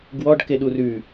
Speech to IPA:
ɡ w ɔ ɖ k e ɗ u r ʉ

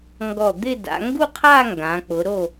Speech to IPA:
ŋ ɡ ɔ˧˩ d̪ ɪ˥˧ d a̰˩˧ ŋ ɡ u˥˧ qʰ a˥˧ ŋ ɡ ã˩˧ k͡p ʊ˩˧ ɾ o˧˩

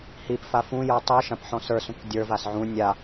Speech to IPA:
h i p f a f ũ j ə˞ tˤ u ʃ ã p ħ ɔ̃ s ə˞ s ũ k dʲ ə˞ v a s ʕ ũ nʲ a

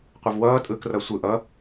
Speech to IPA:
qʷ ʌ v w ʌː tʼ ɯː k r ʌ sʷ ɯ ʔ ʌ

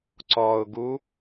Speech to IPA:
ǀ ɔ ʊ̯ ɡ u

